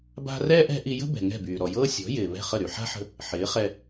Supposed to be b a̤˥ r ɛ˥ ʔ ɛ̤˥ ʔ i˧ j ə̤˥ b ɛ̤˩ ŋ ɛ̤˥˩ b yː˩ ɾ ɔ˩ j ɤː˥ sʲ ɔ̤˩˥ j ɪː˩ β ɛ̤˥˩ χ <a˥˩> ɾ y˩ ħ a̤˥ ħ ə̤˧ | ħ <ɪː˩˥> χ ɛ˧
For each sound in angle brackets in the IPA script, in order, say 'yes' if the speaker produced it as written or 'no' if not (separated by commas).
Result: no, yes